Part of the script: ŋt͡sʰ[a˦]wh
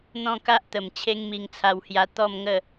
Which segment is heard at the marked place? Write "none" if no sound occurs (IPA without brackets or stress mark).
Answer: a˧